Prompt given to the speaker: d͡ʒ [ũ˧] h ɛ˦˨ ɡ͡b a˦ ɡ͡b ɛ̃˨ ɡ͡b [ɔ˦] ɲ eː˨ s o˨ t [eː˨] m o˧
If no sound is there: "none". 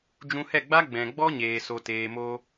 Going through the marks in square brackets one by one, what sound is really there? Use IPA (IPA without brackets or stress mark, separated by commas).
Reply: ũ˧, ɔ˦, eː˨